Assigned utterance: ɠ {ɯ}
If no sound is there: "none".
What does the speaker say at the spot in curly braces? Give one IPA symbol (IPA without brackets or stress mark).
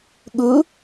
u